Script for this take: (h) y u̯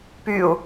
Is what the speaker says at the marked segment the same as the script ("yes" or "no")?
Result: no